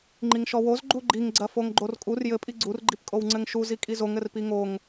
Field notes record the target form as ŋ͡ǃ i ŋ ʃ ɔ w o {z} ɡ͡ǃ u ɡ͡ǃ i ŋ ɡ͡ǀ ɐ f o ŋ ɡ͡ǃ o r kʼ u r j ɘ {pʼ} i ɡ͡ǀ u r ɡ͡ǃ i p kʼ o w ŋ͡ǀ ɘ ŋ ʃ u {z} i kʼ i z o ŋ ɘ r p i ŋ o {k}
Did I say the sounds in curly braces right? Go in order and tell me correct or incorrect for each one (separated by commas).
correct, correct, correct, incorrect